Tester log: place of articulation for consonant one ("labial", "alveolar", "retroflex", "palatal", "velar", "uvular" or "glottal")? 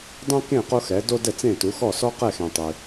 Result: alveolar